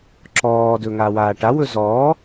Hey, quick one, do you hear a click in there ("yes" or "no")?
yes